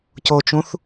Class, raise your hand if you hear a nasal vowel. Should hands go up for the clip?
yes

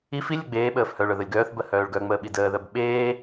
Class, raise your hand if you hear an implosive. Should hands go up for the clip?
yes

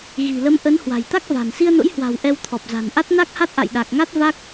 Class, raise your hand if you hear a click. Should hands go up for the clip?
no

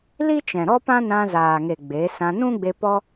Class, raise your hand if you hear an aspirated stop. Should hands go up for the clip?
no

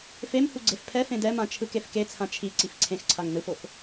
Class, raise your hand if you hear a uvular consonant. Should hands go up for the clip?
no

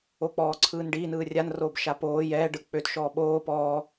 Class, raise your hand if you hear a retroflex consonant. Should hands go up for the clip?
yes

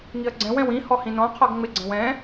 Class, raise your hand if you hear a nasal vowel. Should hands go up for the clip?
yes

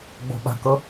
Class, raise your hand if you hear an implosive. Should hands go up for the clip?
yes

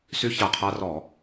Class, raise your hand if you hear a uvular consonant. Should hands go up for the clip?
yes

